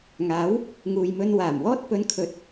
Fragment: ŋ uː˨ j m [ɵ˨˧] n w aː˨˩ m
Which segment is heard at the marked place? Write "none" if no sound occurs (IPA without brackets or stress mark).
ɵ˧